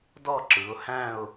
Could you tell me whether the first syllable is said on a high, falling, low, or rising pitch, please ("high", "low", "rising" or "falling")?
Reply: falling